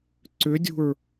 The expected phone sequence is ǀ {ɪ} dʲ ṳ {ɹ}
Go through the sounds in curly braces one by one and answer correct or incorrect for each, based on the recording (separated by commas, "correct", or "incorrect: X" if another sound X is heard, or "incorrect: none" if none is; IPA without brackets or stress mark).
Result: incorrect: ʏ, correct